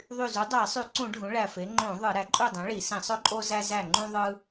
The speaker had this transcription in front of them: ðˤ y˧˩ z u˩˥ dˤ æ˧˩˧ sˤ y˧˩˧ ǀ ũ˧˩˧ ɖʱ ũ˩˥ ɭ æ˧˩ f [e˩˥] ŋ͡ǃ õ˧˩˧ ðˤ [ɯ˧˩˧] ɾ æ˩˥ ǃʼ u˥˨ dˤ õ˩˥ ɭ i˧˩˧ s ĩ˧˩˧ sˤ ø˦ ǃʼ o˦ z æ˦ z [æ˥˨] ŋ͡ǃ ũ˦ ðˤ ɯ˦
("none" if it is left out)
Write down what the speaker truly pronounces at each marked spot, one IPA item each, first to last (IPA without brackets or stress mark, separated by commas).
e˩˥, ɯ˧˩˧, æ˧˩